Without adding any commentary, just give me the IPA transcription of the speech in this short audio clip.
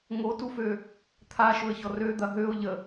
ŋotufø | t̪ʰaʃʊə̯çɔr ød̪ɐ ɦøʊ̯ ʎə

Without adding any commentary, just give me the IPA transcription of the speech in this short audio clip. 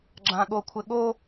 ɡ͡ǁãɠokʷʰɘɠo

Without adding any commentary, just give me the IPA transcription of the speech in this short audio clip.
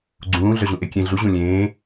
ɡ͡ǀũː ɮœʑũʔekʲẽ ɮu ʑũlʲẽː

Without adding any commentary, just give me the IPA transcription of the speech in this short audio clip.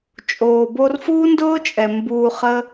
t͡ʃʼoː˨ bo˧rfuː˦ndʊː˦t͡ʃʼɛ˨ mbuː˧χə˦

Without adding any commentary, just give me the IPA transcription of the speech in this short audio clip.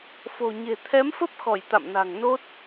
fo̤˨˩ɲe̤˨˩ t̪ʰɛ˨˦mfə˦˥p̚xɔ˧˩j t̪a̰˧˨mna̤˨˩ŋ no˦˥t̚

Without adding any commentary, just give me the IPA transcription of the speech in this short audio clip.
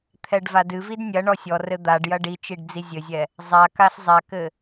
t̪ʰɛɖvadɨvid nʲɐ ɳɔsʲɔrɘ d̪aɖ jɐɖit͡ʃiɖ d͡zizʲɘzʲɛ | zˤakaɬ zˤakɘ

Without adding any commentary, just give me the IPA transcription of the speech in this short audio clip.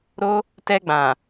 ɾo˦ | tɛ˧ɡ͡bã˨

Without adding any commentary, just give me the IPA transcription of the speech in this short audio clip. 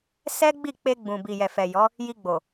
sɛ˦ɡ͡bi˦˨ k͡pe˧ɡ͡bũ˨ bi˨jɛ˨fɛ˨ jɔ˨˦ | ji˧ɡ͡bo˨

